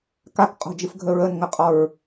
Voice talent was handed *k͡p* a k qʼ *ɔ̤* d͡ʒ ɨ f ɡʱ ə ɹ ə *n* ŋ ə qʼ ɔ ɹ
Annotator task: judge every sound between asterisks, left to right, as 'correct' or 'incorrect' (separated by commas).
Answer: incorrect, correct, correct